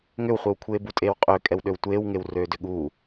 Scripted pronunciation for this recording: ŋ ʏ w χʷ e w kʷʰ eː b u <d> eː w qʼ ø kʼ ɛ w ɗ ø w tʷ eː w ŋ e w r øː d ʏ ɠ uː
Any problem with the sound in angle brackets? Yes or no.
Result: yes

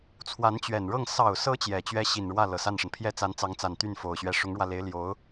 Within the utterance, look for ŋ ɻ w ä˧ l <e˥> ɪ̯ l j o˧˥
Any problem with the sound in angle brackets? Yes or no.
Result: yes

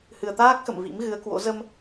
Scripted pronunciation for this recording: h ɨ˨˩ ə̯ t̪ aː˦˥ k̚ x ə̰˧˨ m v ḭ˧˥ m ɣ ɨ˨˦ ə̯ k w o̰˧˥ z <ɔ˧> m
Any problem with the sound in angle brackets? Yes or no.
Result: yes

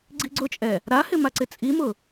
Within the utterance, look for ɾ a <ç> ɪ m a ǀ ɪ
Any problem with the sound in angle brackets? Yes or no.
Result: yes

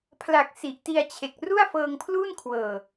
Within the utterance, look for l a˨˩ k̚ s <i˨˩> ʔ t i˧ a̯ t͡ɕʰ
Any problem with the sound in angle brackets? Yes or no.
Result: no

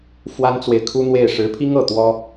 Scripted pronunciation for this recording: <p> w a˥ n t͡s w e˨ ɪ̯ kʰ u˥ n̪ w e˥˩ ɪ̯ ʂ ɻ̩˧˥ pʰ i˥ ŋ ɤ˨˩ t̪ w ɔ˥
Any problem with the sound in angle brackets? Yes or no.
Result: yes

